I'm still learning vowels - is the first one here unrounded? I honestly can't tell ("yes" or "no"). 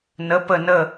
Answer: yes